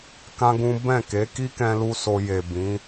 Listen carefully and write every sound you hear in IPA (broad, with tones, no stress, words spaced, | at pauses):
kã˦ɡũ˦ bɛ̃˦˨ke˨˦ki˦ kɛ̃˦lu˦so˧ je˨ bĩ˨˦